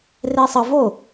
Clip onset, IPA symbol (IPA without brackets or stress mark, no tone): r